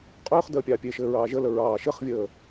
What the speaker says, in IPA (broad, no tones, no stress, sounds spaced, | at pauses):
qʼ øː χ d əː pʲ ɑː pʲ e ʃ ɘː ɹ ɑː ʒ ə l ə ɹ ɑː ʃ ɘ χ vʲ əː